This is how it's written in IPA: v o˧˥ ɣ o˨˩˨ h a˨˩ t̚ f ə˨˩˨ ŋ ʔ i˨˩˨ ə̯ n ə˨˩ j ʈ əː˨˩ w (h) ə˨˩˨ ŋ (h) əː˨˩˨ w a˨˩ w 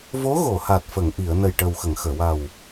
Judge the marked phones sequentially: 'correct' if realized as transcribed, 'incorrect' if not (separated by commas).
incorrect, incorrect